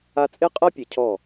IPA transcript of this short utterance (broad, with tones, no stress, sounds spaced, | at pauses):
a˦ t͡sʼ e˦ qʼ ɜ˦ pʲ e˨ cʰ ɔ˦˨